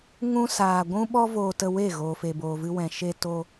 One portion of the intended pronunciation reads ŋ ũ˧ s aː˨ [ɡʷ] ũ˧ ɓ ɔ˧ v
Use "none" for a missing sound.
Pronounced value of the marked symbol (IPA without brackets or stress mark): ɡʷ